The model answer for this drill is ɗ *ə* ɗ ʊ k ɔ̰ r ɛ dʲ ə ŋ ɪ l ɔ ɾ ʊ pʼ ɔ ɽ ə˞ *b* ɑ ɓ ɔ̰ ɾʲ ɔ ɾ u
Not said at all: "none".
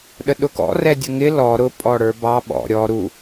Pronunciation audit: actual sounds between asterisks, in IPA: ə, b

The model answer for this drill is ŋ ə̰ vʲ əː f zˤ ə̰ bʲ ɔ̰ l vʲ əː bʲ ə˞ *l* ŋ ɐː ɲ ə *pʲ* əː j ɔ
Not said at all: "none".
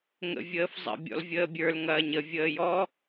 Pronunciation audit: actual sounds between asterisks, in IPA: l, vʲ

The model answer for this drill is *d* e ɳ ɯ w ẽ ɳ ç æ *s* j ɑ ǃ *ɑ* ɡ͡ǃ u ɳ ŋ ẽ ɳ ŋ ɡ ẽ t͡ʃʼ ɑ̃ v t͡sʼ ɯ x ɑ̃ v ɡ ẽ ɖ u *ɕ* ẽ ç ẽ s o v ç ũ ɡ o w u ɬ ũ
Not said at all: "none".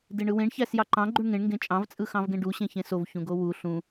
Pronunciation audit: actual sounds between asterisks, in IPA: d, s, ɑ̃, ɕ

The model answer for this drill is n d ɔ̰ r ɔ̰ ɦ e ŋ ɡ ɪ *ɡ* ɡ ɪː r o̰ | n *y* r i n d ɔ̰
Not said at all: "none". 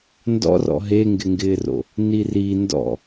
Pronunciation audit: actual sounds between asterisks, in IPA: ŋ, i

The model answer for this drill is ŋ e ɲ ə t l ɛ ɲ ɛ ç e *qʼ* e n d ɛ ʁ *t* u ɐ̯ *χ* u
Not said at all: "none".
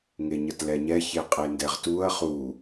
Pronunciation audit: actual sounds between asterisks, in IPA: qʼ, t, χ

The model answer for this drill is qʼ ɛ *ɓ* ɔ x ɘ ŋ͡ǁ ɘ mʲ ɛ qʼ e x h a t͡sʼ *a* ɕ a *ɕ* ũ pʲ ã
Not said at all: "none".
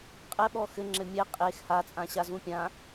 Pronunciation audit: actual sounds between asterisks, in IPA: ɓ, ã, z

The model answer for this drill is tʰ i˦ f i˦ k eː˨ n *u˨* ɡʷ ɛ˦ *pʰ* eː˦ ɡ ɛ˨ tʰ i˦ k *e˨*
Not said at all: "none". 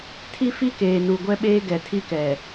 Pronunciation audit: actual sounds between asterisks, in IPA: u˨, ɓ, ɛ˨

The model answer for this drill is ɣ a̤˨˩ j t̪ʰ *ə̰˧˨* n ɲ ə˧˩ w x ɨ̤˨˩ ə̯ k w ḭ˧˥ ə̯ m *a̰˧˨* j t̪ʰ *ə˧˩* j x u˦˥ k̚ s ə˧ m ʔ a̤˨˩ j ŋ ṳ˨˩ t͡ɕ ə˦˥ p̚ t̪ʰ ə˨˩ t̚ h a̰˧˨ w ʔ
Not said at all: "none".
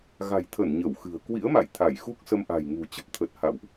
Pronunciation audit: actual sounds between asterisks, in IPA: ə˧˩, a̰˧˨, a˧˩

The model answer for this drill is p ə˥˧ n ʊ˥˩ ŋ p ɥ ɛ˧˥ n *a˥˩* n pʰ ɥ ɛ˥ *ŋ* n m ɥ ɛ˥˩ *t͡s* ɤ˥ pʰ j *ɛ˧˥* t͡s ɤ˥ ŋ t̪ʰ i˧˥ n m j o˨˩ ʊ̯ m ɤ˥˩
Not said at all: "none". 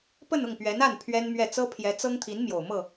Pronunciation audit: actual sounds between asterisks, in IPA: a˥˩, none, t͡s, ɛ˧˥

